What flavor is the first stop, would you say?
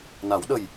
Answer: implosive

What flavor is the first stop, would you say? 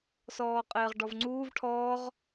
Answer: ejective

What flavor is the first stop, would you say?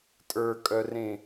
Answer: ejective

